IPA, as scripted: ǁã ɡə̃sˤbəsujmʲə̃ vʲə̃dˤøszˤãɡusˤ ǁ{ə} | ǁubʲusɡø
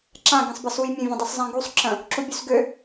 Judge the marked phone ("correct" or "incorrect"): incorrect